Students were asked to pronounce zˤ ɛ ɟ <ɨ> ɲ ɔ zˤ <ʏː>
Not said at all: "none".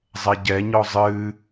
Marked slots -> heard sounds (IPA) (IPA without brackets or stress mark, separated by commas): ɛ, ɨː